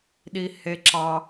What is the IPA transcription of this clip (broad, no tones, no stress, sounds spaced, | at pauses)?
ɗ i h e ǁ ɑ